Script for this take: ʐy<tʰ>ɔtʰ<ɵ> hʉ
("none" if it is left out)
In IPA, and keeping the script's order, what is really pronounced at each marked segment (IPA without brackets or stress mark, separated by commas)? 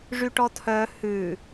ʈ, œ